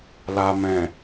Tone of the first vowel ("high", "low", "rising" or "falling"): low